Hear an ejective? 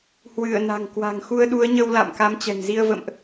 no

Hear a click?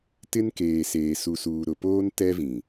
no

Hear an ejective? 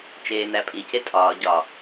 yes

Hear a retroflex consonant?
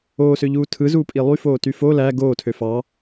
no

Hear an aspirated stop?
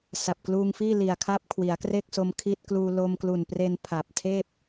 yes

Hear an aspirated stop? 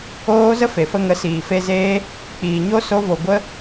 no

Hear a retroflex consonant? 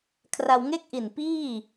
no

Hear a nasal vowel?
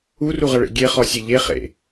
no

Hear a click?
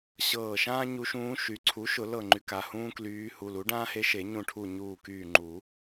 yes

